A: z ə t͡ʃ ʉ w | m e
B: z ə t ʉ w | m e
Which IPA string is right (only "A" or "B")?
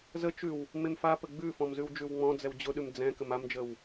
A